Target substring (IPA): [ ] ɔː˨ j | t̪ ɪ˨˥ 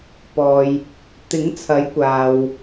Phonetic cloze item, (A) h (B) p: B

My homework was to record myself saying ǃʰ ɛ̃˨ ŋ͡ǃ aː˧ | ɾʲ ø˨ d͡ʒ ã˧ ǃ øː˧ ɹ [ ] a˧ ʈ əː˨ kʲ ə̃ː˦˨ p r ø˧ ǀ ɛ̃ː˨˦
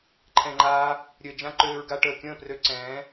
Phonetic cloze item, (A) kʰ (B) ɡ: B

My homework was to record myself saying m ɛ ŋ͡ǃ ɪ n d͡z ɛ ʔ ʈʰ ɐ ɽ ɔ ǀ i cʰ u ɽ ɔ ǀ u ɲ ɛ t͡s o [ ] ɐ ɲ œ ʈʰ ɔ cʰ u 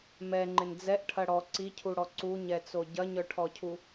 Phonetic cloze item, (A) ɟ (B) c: A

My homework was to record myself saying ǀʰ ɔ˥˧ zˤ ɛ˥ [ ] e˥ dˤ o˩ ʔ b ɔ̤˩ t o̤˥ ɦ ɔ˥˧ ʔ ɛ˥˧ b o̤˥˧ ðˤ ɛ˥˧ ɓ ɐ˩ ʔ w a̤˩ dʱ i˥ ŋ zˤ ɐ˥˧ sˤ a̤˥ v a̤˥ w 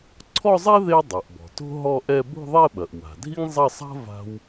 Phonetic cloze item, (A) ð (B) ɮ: A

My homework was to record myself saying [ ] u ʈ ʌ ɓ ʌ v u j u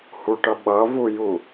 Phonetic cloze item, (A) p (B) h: B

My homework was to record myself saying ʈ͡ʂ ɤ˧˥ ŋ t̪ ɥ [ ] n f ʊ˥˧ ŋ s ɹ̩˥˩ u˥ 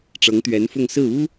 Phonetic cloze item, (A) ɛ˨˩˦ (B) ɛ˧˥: B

